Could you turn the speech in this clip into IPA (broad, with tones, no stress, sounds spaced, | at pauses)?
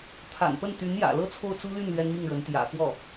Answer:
t̪ʰ a̰˨˩ n p ə˥˩ n t̪ y˧˥ n j ä̰˨˩ l ɤ˥ t͡sʰ o˥˩ ʊ̯ t͡s u˥ l y˥˩ n l ɥ ɛ˥ n m i˥˩ ŋ ɻ ə˧˥ n t̪ j ä̰˨˩ x w ɔ˥˩